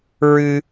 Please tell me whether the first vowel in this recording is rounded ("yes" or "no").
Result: no